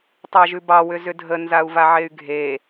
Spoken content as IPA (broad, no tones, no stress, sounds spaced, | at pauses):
tˤ ɑ ʒ ʉ b ɑ w ʏ z ʏ dʱ ə n z a u̯ v a ʕ e y̯ ɡʱ e